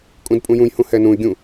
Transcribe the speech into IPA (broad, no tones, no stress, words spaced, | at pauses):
kʼũdpʼũjũjhũ hɛnũy̯ɡʲũ